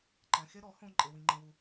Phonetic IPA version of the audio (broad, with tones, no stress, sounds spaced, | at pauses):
ǃ ɛ̃˧ x e˦ ɾ ɔ˨˦ h õ˦ ǃʼ e˦ w ĩ˦ ŋ͡ǃ ĩ˦ w u˦